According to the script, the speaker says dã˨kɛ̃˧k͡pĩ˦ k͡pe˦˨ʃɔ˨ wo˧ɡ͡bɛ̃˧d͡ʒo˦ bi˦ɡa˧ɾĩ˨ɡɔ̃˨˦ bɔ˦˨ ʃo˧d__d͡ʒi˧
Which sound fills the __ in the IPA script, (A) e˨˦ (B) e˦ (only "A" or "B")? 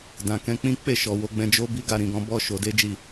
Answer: B